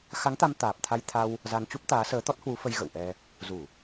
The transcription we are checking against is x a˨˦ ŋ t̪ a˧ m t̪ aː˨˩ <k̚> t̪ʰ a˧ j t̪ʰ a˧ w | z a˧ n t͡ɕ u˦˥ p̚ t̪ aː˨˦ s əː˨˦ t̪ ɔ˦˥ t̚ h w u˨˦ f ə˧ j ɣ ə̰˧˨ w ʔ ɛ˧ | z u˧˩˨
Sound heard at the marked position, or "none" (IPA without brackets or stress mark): p̚